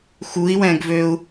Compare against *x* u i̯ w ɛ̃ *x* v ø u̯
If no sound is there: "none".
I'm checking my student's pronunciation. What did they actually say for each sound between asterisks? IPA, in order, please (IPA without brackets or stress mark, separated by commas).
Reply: x, ɡ